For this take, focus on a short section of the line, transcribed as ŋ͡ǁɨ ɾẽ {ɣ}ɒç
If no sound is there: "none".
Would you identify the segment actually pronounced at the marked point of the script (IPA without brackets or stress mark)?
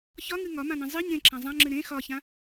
x